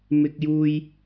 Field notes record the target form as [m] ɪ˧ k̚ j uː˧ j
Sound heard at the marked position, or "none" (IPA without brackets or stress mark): m